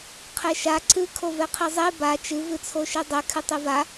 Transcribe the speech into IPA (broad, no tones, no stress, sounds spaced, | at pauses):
qʰ ɛ ʃ a ǀ ɨ kʰ o v ɛ qʰ i zˤ e b a t͡ʃ ɨ v ɨ t͡sʰ o ʃ e dˤ ɛ kʰ ɨ tˤ e v a